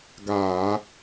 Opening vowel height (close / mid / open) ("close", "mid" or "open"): open